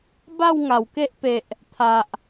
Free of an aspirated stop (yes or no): no